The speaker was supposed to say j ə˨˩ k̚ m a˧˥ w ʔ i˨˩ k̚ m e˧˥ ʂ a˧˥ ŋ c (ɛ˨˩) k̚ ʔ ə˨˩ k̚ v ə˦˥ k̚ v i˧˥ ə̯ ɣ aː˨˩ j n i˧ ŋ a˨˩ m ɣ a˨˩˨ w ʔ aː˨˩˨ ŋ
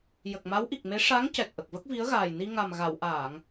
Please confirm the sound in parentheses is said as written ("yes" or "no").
yes